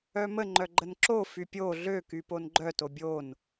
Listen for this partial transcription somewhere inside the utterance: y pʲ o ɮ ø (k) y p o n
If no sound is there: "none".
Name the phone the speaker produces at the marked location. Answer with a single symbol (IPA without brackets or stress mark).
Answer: k